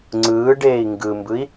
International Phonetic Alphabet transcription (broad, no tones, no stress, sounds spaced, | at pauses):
ŋ͡ǀ ɯː ɖ eː i̯ ŋ ɡ ɯ m b ɯ i̯